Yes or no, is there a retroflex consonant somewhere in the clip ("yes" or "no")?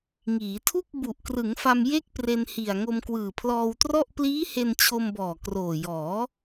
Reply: no